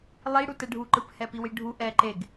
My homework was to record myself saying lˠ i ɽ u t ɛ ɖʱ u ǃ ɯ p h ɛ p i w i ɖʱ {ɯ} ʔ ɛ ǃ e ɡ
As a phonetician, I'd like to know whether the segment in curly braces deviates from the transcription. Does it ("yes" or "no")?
yes